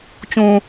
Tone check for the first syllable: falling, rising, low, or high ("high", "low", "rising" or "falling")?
low